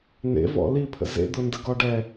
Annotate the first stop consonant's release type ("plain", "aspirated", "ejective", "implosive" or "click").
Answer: aspirated